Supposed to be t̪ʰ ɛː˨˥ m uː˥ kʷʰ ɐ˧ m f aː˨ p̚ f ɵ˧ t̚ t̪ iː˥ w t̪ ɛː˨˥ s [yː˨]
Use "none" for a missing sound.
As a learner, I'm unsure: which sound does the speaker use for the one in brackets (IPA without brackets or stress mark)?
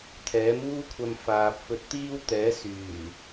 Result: yː˨˩